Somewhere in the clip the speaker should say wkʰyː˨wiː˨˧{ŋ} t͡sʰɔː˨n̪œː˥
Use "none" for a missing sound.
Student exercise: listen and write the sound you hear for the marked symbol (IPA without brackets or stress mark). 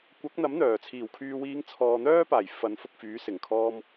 ŋ